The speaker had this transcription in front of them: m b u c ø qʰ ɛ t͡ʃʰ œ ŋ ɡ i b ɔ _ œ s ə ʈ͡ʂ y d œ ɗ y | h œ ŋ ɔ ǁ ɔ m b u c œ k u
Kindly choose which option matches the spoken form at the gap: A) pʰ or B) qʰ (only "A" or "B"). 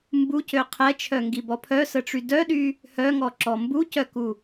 A